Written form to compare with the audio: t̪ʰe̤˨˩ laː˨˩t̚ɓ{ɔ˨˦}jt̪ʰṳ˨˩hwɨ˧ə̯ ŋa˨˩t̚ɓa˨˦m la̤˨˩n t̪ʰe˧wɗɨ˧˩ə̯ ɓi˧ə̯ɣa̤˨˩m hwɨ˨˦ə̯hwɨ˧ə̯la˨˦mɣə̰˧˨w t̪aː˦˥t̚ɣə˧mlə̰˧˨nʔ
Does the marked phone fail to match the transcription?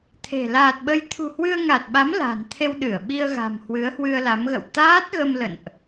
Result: yes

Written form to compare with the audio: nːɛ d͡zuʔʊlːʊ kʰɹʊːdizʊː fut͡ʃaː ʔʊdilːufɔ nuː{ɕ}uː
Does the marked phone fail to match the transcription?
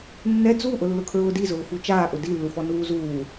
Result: yes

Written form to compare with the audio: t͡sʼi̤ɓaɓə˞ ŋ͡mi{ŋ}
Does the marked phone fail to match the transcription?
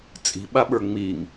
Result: no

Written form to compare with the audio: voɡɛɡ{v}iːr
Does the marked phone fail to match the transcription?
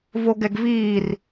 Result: no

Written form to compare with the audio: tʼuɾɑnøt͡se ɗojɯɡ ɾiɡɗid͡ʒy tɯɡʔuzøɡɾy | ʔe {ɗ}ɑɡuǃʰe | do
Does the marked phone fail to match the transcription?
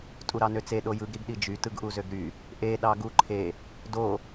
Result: no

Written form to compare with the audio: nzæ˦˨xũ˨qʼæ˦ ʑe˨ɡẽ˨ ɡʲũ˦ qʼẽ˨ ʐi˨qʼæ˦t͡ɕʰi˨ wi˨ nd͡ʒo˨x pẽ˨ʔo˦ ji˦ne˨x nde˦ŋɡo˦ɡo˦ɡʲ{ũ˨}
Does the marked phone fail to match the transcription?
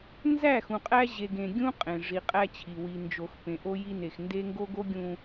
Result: no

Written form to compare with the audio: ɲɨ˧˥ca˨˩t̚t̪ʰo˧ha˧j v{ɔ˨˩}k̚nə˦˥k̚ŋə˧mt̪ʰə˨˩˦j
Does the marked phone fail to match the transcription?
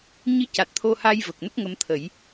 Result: yes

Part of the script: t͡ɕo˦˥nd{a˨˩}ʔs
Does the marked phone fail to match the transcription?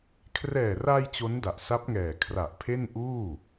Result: no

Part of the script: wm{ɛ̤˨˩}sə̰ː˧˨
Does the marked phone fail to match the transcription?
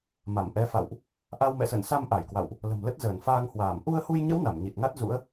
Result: yes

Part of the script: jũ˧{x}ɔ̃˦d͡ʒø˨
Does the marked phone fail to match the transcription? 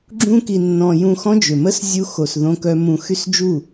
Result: no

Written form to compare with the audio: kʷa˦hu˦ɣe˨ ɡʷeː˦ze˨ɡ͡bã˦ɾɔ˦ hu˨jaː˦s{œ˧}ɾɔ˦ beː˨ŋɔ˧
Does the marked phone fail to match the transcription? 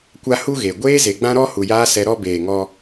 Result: yes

